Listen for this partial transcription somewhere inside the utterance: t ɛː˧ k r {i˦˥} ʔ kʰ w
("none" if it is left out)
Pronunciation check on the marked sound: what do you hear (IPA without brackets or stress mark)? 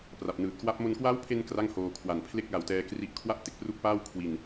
i˦˥